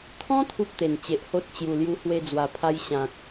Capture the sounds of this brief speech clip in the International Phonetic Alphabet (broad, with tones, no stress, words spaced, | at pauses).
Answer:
t̪ʰɔ̃˦ t̪ʰu˦p̚t̪e˨˩n t͡ɕe˨ʔho˦t̚t͡ɕju˨˩ lju˧hwe˧d͡zwa˨˩ pʰa˧jɕã˨k̚